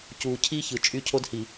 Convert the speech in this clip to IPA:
c uː˨ cʰ i˦ ç ɯ˨ t͡ʃʼ y˦ cʰ o˦ d h i˨

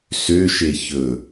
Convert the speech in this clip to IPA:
s ø ʃ e ç ɵ

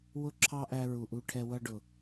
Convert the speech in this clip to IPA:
w ʊ˦ ǁʰ ɑ˦ ʔ æ˧ ɹ u˨ ʔ u˧ ʈʰ ɛ˧ w ʌ˧ ɖ ʊ˨

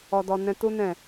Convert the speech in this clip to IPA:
ɔ˧ d ɔ˧ n ɛ̃˦ t u˦ n ɛ̃˦˨

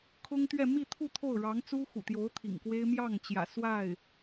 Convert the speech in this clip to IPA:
kʰ ʊ˥ ŋ t̪ ɥ ɛ˥˧ m i˥˧ t̪ʰ u˥˧ t̪ʰ o˥˩ ʊ̯ ɻ ɑ˧˥ ŋ t͡s u˥ x ṵ˨˩ t̪ j o˧˥ ʊ̯ t̪ʰ ḭ˨˩ ŋ k w e˥ ɪ̯ m j ɑ˥˩ ŋ t͡ɕ j ä̰˨˩ s w a˥˩ ɪ̯

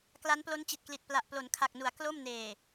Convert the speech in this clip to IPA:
k l a˦˥ n p l o˦˥ n t͡ɕ i˨˩ t̚ k l i˨˩ t̚ p l a˨˩ ʔ p l o˩˦ n kʰ a˨˩ k̚ n u˩˦ a̯ k l o˥˩ m n eː˨˩

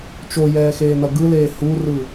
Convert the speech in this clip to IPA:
t͡ʃ o j ɛː x eː n ʌ ɡ ɯ l eː h u r ɯ

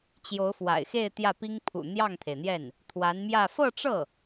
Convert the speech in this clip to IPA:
t͡ɕ j o˧˥ ʊ̯ f w a̰˨˩ ɪ̯ x e˥˧ ɪ̯ t̪ j ä˥˩ p i˥ ŋ pʰ ṵ˨˩ n̪ j ɑ˥˩ ŋ t̪ʰ e˩ ɪ̯ n̪ j ɛ˥˩ n | t̪ʰ w a˧˥ n m j ä˥˧ f ɤ˥˧ ʈ͡ʂ ɤ˥˩

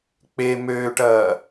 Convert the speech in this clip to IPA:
k͡p e m øː ʈ ɐː

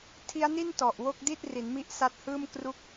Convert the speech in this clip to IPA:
tʰ i˦˥ a̯ n i˥˩ n t ɔ˨˩ ʔ w o˥˩ k̚ d i˥˩ t̚ r i˩˦ n m i˦˥ ʔ s a˦˥ t̚ h ɯː˥˩ m k r u˥˩ k̚

